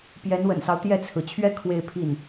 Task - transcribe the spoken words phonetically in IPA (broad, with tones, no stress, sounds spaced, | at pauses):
p j ɛ˧˥ n w ə̰˨˩ n s ɑ˦ ʊ̯ t̪ j ɛ˥˩ t͡sʰ ɹ̩˩ t͡ɕʰ ɥ ɛ˥ kʰ w e˥˧ ɪ̯ pʰ i˥˩ n